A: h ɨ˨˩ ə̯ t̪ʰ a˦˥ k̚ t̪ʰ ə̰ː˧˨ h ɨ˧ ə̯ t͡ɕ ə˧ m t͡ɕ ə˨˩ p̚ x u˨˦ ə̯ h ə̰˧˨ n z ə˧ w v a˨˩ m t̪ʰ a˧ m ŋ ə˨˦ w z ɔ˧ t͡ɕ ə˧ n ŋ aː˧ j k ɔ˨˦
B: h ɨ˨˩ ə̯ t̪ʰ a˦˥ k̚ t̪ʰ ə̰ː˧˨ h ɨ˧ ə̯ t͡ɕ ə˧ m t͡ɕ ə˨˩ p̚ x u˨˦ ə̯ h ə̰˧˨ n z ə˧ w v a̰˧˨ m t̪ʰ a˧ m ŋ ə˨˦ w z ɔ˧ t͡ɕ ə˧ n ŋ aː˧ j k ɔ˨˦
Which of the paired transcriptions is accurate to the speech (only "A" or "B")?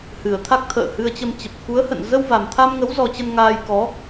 A